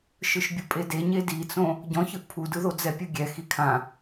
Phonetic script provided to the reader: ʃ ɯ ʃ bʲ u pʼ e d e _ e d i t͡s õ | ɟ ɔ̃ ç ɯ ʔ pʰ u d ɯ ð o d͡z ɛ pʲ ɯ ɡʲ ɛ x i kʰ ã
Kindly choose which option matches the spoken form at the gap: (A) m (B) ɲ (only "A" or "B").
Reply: B